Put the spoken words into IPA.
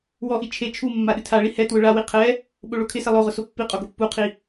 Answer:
wɔʔi t͡ʃʰe t͡ʃʰu mːaɗɪtʰaɭi hɛtwʊ ɭawi qʰɛ | ɓoɭokʰɪsɛ lˠoʁʊ sopːiqʼo ɡopːuqʰi

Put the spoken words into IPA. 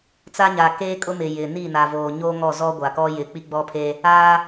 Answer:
t͡sa˦ɲaː˨keː˦kʼʊ˦ mɪ˨ jɪ˨ni˦˨ na˨voː˨ɲoː˦ ŋɔ˦˨zɔ˦ɡʷa˨kɔ˦ jɪ˨ k͡pi˦ɡ͡bɔ˦pʰe˦ | aː˦

